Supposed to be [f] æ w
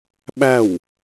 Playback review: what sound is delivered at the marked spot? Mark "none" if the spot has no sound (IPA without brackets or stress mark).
ɓ